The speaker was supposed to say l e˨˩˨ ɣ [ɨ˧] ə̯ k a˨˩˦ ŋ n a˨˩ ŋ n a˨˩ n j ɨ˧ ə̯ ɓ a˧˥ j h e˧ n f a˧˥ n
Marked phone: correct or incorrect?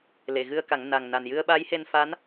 correct